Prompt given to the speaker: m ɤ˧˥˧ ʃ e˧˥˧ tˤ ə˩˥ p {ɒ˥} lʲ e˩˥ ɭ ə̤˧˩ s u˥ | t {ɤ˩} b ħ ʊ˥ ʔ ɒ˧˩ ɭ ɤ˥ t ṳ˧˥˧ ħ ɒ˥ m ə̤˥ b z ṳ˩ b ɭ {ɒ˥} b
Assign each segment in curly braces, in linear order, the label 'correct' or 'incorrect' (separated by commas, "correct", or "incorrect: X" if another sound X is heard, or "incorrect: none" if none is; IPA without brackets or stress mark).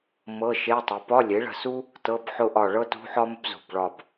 incorrect: ɒ˧˥˧, incorrect: ɤ˧˥˧, incorrect: ɒ˧˩